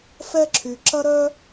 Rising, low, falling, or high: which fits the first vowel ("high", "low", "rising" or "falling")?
high